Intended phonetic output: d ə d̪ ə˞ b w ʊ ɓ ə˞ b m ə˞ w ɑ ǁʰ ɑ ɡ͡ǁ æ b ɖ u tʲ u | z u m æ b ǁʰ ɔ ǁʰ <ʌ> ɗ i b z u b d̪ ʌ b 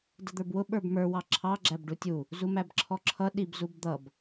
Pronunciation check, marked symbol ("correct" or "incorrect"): correct